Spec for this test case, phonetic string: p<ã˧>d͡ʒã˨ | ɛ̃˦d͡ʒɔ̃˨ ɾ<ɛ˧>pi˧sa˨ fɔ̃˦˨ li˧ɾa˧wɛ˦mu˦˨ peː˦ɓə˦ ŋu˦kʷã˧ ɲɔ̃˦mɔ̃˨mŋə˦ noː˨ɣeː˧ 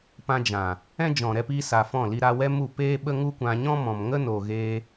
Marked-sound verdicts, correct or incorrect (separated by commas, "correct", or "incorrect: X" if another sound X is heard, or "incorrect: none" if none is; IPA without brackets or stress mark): correct, correct